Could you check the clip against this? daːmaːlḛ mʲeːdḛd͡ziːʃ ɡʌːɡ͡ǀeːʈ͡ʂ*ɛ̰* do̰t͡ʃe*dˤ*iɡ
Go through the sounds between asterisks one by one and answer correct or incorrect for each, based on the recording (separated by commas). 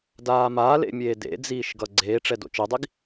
incorrect, correct